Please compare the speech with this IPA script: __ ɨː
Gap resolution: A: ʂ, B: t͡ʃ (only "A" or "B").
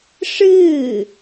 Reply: A